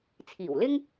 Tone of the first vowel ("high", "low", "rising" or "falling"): low